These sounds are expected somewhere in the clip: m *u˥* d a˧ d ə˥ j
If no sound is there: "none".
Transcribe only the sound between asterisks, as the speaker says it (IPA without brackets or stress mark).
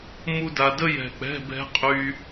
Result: u˥